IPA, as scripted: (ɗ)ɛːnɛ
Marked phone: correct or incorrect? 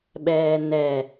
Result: incorrect